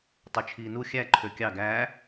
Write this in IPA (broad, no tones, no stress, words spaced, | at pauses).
tˤut͡ʃʰiːnu xʲæ ǃʰøkʲɑ ɡæː